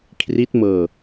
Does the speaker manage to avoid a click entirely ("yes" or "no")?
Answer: yes